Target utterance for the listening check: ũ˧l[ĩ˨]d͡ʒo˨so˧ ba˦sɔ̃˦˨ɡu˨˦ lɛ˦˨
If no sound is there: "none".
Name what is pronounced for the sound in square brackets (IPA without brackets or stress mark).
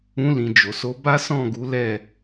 ĩ˨